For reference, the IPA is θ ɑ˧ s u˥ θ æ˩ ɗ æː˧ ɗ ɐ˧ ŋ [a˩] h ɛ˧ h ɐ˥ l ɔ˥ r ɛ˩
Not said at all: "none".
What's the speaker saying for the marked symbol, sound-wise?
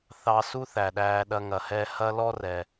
ɐ˩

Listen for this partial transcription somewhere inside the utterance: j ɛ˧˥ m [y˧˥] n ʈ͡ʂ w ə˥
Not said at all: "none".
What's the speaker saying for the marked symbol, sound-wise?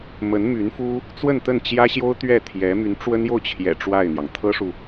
y˧˥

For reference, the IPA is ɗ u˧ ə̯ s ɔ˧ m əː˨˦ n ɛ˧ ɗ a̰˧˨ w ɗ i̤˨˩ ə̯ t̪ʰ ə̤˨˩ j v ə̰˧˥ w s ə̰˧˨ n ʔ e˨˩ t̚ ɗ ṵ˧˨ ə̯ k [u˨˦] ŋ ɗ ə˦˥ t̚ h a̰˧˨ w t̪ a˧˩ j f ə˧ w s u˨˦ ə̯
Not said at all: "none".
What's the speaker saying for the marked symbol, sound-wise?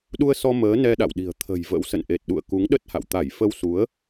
u˨˦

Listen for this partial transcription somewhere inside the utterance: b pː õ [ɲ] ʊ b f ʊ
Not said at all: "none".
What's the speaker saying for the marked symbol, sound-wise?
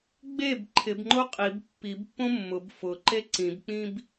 mː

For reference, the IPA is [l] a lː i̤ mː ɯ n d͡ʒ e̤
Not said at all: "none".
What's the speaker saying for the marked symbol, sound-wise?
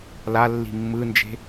l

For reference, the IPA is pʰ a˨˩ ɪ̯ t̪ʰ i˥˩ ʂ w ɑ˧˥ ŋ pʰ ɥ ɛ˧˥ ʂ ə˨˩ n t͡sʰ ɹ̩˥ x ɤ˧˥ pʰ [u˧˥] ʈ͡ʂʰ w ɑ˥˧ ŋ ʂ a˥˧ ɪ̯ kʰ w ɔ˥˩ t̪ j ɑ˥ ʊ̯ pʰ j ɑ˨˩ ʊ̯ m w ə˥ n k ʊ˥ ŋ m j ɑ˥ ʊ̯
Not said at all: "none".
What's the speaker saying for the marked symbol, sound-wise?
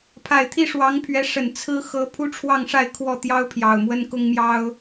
u˥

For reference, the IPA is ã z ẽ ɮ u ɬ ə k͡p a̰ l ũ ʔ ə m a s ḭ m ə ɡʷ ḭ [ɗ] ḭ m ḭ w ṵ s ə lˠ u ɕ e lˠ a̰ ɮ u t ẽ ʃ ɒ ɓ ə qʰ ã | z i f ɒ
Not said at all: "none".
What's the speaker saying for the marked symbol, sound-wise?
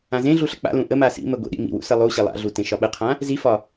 ɗ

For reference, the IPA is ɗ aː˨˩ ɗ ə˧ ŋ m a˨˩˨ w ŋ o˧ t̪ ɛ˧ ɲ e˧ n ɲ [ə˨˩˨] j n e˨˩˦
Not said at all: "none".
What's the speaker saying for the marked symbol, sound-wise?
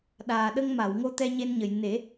ə˨˩˨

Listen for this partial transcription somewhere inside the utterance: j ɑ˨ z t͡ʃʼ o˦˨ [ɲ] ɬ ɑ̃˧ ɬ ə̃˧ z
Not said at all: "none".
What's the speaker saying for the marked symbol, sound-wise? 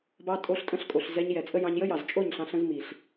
ɲ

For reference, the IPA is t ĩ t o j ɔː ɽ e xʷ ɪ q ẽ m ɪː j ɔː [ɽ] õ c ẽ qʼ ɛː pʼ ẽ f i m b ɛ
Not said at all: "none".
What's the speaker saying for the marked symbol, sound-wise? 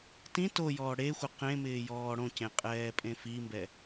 ɽ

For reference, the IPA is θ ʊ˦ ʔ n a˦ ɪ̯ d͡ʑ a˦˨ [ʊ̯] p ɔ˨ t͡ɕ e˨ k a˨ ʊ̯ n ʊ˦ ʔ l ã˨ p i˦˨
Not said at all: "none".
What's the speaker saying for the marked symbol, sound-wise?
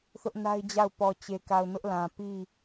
ʊ̯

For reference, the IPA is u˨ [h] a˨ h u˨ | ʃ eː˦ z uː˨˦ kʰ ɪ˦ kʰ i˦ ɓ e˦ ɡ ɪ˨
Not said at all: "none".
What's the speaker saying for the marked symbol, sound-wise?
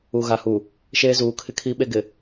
ɣ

